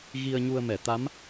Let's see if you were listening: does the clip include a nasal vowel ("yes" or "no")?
no